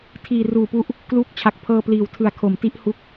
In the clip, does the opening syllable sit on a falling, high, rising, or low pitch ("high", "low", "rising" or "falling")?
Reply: low